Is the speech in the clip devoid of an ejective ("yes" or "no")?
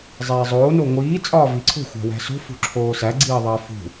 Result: no